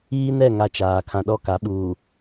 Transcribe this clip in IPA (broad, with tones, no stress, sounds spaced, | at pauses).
iː˦ n ɛ˦˨ ŋ a˦ t͡ʃ aː˨ kʰ ã˨ ɗ ɔ˦˨ k a˨˦ ɓ uː˨